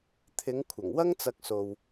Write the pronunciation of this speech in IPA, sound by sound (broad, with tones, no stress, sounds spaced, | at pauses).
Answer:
t̪ʰ ɪ˨˧ ŋ kʷʰ ɐ˨˩ ŋ w ɐ˥ ŋ t͡s ɐ˧ k̚ s o˧ w